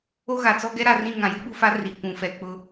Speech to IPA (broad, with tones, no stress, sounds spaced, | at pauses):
o˦ ɣ a˨ t͡s ɔ˦ ɡ ɛ˦ ɾ a˨ r ĩ˦˨ ŋ ã˨ j u˦ ɓ u˦ f a˦ r i˨ kʷ ũ˨ f ɛ˨ k͡p ʊ˦